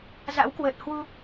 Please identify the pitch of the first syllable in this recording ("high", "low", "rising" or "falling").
rising